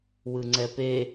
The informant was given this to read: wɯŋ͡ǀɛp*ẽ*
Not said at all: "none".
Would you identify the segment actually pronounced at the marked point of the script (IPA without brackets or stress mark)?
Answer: e